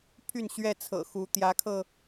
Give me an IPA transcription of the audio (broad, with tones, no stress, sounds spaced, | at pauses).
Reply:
pʰ y˥˨ n ɕ ɥ ɛ˥˨ t͡sʰ ɤ̰˨˩ x u˨˦ t̪ j ä˨˦ kʰ ɤ˧